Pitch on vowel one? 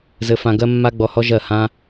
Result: high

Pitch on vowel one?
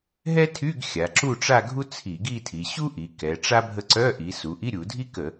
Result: high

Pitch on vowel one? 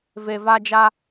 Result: low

